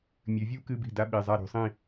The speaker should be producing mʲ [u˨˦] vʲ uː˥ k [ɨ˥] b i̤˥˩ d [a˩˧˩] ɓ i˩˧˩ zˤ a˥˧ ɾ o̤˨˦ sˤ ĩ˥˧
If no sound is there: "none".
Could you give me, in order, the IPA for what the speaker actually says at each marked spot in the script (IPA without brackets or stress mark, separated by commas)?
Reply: ʉ˨˦, ɨ˧˥˧, a˥